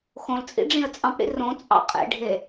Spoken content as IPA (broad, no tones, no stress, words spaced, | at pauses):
xõlt͡sʼḭ ɖ͡ʐĩə̯t͡sʼɑ̃pɽḭ rõ t͡sʼɑ̰qʼḛɖʱe